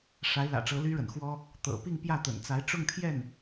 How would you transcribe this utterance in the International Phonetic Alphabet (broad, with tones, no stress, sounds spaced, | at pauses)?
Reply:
ʂ a˧˥ ɪ̯ l ä̰˨˩ ʈ͡ʂ ɤ˧˥ l y˥ ɻ ə̰˨˩ n x w ɔ˥ | t̪ ɤ̰˨˩ p i˥˧ ŋ p j ä˥˩ t̪ ə̰˨˩ n t͡s a˧˥ ɪ̯ ʈ͡ʂ ʊ˥˧ ŋ t̪ʰ j ɛ˥˩ n